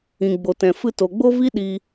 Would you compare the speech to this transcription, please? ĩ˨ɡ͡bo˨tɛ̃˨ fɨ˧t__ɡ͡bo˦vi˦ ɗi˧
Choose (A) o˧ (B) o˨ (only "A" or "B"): B